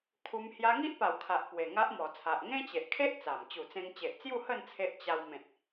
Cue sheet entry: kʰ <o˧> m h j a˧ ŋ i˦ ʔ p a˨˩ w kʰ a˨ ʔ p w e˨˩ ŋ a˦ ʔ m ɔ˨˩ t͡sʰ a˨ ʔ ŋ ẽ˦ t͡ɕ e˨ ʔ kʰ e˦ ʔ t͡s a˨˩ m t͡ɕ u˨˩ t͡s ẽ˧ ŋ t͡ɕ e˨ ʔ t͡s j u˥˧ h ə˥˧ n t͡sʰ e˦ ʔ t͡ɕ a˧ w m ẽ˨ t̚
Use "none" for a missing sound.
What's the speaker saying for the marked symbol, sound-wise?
u˧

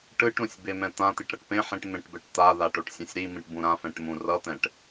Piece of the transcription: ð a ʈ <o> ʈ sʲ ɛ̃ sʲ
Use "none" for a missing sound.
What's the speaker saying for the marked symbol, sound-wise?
o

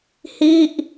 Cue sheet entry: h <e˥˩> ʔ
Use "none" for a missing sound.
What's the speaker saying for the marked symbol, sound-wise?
i˥˩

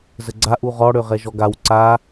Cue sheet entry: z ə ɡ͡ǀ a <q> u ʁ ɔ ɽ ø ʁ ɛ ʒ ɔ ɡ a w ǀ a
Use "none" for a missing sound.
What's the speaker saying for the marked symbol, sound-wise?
ʔ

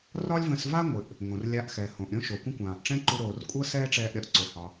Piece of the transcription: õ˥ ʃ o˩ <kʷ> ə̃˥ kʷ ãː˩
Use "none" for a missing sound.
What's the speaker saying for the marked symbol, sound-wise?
kʷ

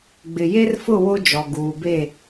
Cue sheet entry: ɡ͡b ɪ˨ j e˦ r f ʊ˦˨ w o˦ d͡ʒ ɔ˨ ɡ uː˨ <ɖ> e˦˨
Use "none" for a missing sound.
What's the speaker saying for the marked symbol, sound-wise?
b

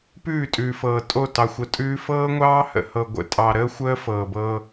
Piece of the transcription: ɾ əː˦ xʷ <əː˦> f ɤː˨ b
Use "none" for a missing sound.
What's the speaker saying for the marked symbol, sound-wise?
əː˦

